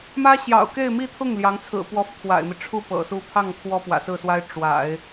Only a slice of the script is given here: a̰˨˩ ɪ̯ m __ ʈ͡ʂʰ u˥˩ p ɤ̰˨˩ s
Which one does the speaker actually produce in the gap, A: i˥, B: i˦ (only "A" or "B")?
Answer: B